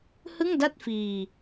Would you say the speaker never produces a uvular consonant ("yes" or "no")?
yes